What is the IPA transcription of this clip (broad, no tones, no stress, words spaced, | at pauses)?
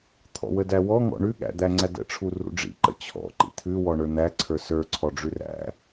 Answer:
t̪ʰɔ̰wədæwɔ ŋɔ̰ɳʉ ɠæ̰d̪æŋ͡ǀædə̰ ʈ͡ʂʰurṵɖ͡ʐḭ ǃə̰t͡ɕʰɔ̰ ǃḭt̪ʰʉ wɔɳə˞n̪æ ǀʰə˞sə˞ ǀʰɔɖ͡ʐʉræ̰